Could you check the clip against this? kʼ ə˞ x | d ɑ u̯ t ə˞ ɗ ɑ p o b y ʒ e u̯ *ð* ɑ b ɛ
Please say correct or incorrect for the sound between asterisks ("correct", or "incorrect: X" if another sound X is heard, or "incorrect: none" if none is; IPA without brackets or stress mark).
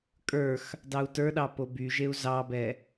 incorrect: z